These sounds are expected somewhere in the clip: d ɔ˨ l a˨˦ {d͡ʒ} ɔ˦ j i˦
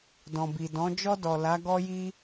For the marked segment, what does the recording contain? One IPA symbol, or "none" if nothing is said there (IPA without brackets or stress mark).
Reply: ɡ